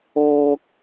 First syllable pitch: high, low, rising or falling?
high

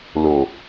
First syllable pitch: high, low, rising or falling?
low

